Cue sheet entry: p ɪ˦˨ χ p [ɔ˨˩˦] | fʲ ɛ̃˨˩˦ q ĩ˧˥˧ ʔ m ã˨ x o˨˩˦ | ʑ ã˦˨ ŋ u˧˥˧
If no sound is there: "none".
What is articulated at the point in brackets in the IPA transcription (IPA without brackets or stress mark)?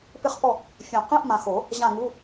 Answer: ɔ˦˨